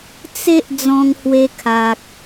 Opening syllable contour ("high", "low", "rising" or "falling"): high